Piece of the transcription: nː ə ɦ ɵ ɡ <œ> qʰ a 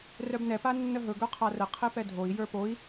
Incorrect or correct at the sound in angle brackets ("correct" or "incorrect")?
correct